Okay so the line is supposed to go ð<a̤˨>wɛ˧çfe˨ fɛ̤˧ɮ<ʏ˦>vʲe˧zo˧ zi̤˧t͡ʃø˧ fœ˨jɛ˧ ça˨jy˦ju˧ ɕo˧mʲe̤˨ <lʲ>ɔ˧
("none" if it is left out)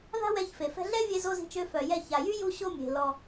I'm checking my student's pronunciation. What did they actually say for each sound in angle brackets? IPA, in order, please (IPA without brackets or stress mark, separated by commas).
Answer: a̤˦, ɛ˦, l